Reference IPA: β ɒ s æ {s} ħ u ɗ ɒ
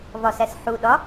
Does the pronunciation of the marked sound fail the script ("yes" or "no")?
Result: no